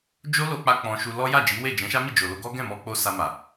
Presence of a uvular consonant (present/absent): absent